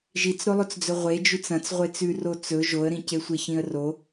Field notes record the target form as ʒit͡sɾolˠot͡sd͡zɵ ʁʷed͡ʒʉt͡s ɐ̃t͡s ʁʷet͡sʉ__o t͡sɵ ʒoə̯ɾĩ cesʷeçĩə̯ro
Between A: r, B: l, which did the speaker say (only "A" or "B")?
A